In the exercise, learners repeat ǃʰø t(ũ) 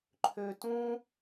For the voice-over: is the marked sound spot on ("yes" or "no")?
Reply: yes